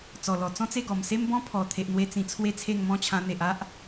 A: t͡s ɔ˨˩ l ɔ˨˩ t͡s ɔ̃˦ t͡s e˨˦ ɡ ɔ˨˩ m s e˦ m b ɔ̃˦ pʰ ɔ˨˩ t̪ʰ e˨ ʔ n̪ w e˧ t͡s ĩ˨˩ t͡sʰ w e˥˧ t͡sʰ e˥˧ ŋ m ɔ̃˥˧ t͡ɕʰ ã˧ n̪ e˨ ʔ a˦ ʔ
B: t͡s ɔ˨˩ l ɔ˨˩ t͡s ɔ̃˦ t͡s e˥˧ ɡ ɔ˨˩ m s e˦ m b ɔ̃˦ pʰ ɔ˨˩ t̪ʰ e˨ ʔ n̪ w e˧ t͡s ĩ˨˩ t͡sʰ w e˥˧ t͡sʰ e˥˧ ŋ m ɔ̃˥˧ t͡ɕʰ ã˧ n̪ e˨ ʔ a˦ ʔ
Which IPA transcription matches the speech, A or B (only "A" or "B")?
B